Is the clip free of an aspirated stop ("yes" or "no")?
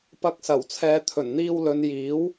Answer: no